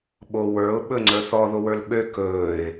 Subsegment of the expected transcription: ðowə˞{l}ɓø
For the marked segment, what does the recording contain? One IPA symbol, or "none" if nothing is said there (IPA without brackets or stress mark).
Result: l